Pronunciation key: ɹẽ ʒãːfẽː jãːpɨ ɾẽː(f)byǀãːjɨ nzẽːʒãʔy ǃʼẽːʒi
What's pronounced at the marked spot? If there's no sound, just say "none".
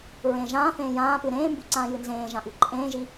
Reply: m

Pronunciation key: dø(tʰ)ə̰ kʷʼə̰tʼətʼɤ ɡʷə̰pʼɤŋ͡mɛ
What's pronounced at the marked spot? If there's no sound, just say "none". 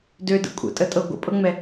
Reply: d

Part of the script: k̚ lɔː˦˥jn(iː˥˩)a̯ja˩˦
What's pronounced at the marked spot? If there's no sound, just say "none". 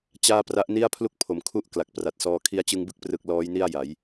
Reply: i˥˩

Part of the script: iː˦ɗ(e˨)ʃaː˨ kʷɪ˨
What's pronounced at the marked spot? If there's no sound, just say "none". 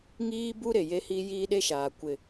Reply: e˦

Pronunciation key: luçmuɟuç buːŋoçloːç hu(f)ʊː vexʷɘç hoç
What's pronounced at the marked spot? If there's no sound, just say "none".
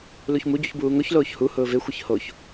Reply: h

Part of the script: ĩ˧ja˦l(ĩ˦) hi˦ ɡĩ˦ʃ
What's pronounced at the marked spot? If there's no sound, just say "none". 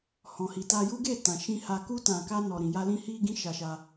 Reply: ĩ˦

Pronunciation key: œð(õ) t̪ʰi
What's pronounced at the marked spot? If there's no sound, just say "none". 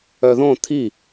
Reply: õ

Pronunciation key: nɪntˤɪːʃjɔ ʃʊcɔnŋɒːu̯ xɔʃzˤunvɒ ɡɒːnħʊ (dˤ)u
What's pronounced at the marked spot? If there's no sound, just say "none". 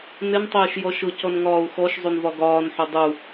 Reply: dˤ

